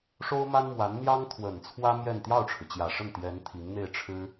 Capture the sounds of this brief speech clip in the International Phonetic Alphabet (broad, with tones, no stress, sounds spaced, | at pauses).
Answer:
ʂ o˥ ʊ̯ m a˥ n m w a˧˥ n n̪ j ɑ˥ ŋ t̪ʰ w ə˨˩ n t͡sʰ w ä˥ m j ɛ˥˧ n t̪ j ɑ˥˩ ʊ̯ ʈ͡ʂʰ ɻ̩˩ t͡ɕ j ä˨˩ ʂ ə˥˩ n t̪ j ɛ˧˥ n t̪ʰ i˧˥ ŋ n̪ e˥˩ ɪ̯ ʈ͡ʂʰ ɻ̩˥